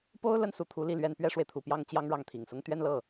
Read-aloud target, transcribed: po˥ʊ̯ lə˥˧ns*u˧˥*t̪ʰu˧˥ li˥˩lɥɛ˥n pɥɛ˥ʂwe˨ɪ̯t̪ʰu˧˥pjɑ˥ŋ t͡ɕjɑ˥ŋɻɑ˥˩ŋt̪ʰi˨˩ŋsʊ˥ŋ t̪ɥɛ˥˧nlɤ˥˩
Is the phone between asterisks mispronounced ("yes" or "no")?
yes